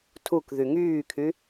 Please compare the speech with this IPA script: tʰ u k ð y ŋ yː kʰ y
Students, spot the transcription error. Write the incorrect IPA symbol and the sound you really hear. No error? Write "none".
none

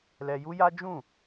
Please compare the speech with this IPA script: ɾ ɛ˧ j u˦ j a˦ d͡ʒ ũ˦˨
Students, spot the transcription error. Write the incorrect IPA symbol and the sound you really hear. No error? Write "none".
ɾ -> l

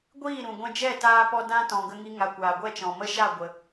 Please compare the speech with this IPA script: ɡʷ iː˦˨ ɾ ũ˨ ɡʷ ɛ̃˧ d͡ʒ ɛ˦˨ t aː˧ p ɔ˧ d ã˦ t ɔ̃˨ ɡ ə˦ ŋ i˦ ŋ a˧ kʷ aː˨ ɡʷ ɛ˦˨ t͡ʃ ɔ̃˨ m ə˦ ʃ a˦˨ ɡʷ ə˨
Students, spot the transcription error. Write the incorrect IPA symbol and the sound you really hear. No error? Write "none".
none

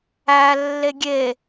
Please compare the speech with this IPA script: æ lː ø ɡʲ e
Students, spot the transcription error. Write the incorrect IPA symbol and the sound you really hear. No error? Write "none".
ø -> e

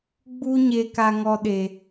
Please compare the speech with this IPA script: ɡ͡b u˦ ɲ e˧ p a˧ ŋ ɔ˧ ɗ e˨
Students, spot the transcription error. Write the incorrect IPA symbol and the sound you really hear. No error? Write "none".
p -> k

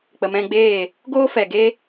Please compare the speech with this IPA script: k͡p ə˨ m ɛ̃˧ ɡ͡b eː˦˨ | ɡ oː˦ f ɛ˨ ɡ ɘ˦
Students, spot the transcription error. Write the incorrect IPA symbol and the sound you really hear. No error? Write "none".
ɘ˦ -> e˦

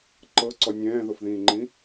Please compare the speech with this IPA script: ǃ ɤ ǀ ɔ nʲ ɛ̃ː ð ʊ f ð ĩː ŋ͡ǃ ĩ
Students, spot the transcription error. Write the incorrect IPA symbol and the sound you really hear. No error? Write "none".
none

